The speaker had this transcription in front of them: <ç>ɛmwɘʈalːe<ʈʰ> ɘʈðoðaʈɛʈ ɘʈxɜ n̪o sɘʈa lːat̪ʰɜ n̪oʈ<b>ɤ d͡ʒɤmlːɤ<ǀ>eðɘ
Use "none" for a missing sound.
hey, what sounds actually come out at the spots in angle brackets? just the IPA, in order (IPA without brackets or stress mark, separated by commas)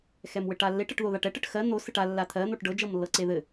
x, ʈ, ɖ, ǀ